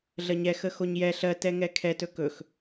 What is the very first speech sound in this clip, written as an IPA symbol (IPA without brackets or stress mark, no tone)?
ɮ